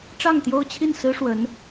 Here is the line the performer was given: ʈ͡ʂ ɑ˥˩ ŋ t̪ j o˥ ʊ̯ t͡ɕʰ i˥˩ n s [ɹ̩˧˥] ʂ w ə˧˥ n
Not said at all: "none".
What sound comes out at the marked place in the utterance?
ɹ̩˥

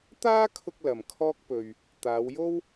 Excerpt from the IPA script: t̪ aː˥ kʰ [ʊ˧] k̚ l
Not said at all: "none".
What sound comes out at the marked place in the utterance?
ʊ˧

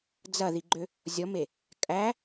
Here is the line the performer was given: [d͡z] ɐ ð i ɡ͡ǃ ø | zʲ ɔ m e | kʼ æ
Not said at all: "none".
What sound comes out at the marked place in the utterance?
d͡z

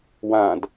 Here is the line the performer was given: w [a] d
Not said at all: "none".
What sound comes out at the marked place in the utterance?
ã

